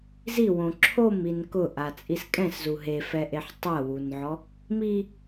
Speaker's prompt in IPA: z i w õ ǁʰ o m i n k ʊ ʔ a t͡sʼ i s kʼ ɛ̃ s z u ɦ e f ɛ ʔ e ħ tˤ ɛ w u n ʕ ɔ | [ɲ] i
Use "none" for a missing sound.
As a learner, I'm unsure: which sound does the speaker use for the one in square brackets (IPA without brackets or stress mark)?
m